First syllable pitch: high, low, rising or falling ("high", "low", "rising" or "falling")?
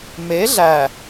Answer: rising